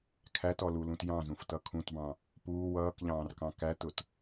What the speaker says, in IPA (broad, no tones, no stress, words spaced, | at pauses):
kʰætɔlulũt jɑ̃zũftʌ kʰũtbɑ̃ | puː wʌːkʎɑ̃ːrkɑ̃ kætʊt